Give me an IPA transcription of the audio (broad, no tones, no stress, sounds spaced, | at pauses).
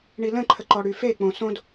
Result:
ɳ i l ə̃ ǃʰ ə ǃ ɔ ɽ y f e k͡p õ s õ d